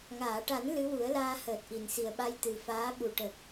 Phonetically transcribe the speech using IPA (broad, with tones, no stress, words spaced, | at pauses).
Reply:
ŋaː˨˩˨ʈa˨˩˦n lɨ˧˥wu˨˩˦ə̯laː˧ həː˨˩t̚ʔi˨˩˨n si˨˩ə̯ɓa˧j t̪ɨ˨˩faː˧˥ɓu˨˩ ʈə˨˩k̚